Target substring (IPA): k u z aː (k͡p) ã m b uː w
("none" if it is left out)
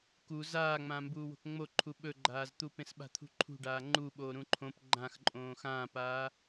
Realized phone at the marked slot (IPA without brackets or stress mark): ŋ͡m